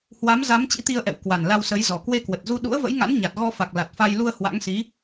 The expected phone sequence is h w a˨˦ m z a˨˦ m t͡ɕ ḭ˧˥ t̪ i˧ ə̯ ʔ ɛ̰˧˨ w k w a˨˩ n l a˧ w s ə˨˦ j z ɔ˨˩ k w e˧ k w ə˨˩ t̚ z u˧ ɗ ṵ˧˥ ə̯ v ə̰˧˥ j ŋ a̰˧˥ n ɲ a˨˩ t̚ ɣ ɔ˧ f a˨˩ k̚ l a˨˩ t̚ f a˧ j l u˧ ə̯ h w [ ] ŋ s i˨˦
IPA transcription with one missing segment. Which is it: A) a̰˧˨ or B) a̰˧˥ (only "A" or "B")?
B